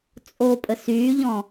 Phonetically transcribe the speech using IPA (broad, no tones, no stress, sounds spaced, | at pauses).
t͡sʼ o pʼ ə s yː ʎ ɔ̃